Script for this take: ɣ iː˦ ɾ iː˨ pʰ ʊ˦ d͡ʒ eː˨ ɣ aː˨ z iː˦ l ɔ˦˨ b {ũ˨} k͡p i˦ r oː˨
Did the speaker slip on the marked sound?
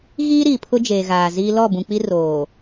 no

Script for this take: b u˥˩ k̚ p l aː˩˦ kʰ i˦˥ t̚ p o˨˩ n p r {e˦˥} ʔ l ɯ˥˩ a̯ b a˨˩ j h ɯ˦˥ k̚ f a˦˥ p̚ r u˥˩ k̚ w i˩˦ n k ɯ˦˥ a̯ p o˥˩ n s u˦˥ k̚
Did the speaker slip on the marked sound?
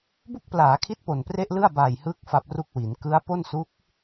yes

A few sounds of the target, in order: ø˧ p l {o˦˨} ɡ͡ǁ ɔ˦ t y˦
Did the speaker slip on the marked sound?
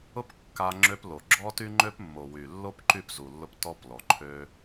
yes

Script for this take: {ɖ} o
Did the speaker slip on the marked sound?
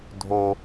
yes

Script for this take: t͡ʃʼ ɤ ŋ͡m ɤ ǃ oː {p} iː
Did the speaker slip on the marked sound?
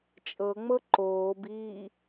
yes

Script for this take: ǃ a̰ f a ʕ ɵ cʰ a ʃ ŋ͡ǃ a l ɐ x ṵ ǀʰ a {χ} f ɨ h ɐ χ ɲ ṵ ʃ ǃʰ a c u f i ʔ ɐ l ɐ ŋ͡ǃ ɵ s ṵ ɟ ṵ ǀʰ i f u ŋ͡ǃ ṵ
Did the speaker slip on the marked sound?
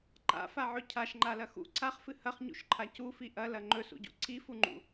no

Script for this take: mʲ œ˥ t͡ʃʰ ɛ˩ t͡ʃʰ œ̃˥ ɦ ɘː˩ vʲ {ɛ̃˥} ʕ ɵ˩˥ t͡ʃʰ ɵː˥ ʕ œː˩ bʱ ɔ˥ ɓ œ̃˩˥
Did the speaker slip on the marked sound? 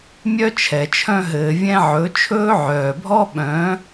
no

